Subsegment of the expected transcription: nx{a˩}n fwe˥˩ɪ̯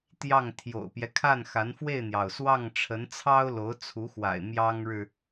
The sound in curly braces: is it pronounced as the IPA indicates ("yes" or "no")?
no